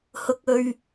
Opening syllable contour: low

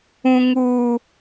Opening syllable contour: high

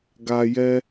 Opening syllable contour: low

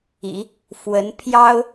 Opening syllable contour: low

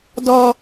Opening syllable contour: high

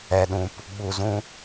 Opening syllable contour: low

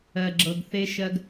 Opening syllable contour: low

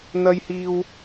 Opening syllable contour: high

